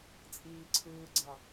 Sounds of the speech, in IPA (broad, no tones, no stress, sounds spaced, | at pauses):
t͡sʼ iː ǀʰ ɯː ɡ͡ǀ ɑ